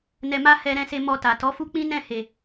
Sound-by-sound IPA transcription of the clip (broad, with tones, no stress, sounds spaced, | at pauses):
n ɛ˧ m a˦ h ɛ˧ ɾ ɛ̃˧ s e˧ m ɔ˧ t a˨ t ɔ˨˦ f u˦ k͡p ĩ˦ n ɛ̃˦˨ h e˨